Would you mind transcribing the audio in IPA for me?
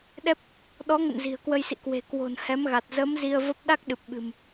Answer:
ɗ ɛ˦˥ p̚ | ɗ ɔ˨˦ ŋ ə̰˧˨ n z i̤˨˩ ə̯ k w ə˧ j s ḭ˧˨ k w e̤˨˩ k w o̤˨˩ n h ɛ˨˦ m ɣ a˨˩ t̚ z ə˨˦ m z i˧ ə̯ v ə˦˥ p̚ ɗ a˦˥ k̚ ɗ ɨ˨˩ p̚ ɓ ɨ̤˨˩ m

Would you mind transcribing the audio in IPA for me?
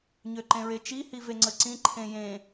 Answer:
ɲ ø ǃ ẽ ɹ e t͡ʃ i h i v e ŋ͡ǀ ə ǀ ĩ ǃʰ ẽ j ẽ

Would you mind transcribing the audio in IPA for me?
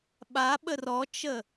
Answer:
ɓ a ɓ ə r ɔ t͡ʃ ə

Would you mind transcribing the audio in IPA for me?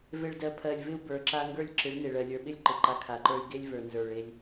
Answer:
v e˨ ɭ d ɜ˨ pʰ ɜ˨ lʲ v ɪ˦ u̯ b ə˞˨ ǁ a˦ ŋ ɡ ə˞˦ lʲ ǁ ɪ˨˦ ɭ n e˨ ɭ ɜ˨ lʲ ə˞˨ ɓ ɪ˦ lʲ ǃ ɪ˨ ǃ a˦ kʰ a˨ ǃ ə˞˦ y̯ ɡ e˦ lʲ v ə˞˨ n z ə˞˨ ɭ e˦ lʲ

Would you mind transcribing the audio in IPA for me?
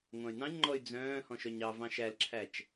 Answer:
ŋʷ ɑ̃ y̯ n ɑ̃ ɲ ŋ͡ǃ ɔ y̯ d͡z œ̃ː h ɔ̃ ʃ œ ɲ ɑ v ɑ̃ ʃ æ l ǁʰ æ t͡ʃ

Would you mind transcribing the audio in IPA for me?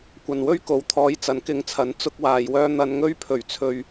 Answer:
kʷ ɐ˨ n w ɵ˥ ɥ k o˨˥ w t̪ʰ ɔː˨˧ j t͡s ɐ˨˥ n k ɪ˧ ŋ t͡sʰ ɐ˨˥ n t͡s ʊ˥ k̚ w aː˨ j w œː˥ n̪ ɐ˧ n ŋ ɵ˥ ɥ pʰ ɵ˨˩ ɥ t͡sʰ ɵ˨ ɥ

